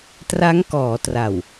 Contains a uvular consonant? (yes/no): no